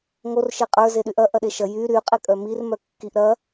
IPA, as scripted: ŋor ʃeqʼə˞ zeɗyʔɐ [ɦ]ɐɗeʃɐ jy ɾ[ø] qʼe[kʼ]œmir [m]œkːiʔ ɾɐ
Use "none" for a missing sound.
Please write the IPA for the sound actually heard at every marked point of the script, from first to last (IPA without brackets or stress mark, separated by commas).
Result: ʔ, y, kʼ, m